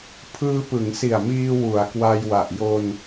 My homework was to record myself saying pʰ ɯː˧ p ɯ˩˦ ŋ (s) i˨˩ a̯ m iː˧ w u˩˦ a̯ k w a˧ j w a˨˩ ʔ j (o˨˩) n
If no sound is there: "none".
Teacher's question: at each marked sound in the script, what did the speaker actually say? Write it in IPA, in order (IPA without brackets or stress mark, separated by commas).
s, o˧